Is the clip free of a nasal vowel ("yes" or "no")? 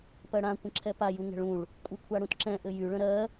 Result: no